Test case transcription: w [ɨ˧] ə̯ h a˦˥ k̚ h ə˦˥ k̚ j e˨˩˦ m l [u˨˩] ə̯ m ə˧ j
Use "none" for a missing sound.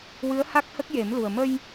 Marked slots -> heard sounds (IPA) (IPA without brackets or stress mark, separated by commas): ɨ˧˥, u˨˩